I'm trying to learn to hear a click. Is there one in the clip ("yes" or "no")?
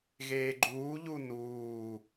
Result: yes